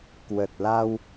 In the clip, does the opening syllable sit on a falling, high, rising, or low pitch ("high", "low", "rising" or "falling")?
low